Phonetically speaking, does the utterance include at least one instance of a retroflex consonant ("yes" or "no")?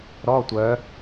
no